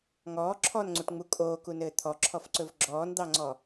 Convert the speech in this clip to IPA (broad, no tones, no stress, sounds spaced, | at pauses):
ŋ ɔː ǁʰ ɔ n ŋ͡ǀ u ʈ ŋ͡m u kʼ oː k u n ɘː t̪ʰ ɔ ǁʰ ɔ f ǀ ɵ v ɡ͡ǁ ɔː n d̪ ɑ ŋ͡ǀ ɔ